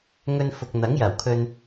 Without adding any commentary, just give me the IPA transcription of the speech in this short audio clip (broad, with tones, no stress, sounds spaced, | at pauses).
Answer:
ŋ ɵ˨ n f ʊ˨ k̚ n̪ ɐ˨˥ ŋ j ɐ˨˩ w kʰ ɵ˨ n